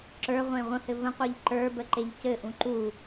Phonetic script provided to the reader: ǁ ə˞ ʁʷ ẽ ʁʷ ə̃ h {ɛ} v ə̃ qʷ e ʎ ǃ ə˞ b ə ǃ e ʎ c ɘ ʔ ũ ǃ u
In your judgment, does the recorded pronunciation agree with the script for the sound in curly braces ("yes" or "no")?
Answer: no